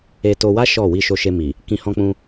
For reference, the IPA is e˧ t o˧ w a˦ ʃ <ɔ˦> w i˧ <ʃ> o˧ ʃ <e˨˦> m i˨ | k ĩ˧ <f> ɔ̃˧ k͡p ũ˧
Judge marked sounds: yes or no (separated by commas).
no, yes, no, no